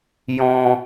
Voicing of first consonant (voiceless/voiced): voiced